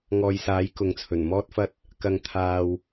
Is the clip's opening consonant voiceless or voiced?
voiced